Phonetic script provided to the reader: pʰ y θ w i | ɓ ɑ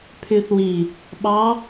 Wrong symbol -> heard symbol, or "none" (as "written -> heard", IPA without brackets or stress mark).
none